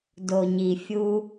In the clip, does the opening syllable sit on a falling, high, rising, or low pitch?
low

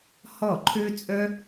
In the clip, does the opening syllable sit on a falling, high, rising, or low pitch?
falling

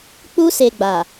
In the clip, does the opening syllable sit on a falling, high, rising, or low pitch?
high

